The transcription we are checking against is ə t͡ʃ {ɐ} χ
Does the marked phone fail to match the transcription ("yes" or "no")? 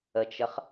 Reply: yes